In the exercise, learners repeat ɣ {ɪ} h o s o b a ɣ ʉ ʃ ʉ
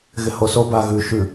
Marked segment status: correct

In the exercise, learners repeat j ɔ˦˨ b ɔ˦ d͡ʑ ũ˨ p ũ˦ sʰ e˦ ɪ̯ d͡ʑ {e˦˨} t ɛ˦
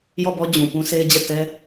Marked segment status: incorrect: ɛ˦˨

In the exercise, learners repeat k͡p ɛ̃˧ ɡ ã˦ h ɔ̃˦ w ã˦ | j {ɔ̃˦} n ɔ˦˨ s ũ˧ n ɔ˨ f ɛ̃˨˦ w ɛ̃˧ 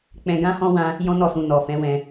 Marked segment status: correct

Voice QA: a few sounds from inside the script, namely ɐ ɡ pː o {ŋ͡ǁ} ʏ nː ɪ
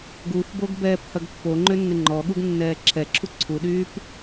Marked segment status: incorrect: ŋ͡ǃ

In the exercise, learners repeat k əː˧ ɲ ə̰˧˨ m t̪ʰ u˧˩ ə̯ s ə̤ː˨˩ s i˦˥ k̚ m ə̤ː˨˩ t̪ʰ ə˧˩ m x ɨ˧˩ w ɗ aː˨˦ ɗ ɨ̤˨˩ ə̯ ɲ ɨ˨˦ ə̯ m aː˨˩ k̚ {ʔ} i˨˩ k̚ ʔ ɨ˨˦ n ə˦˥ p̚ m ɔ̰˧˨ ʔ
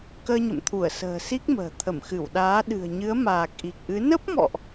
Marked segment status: correct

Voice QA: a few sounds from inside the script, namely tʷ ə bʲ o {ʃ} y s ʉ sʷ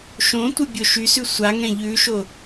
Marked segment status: correct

